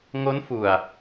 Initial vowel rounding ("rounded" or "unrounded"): rounded